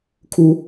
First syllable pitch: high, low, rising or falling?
high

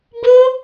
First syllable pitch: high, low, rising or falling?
high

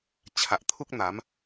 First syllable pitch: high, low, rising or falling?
low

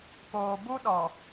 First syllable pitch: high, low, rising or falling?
low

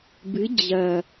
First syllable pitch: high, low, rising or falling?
rising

